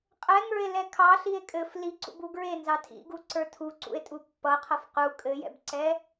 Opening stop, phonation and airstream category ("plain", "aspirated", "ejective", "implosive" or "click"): ejective